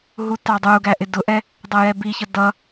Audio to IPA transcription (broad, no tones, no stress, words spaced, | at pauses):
ɦutɑdˤuɡæ ʔɪdʊʔɛ | dˤʌjɛbiçʌ dʌ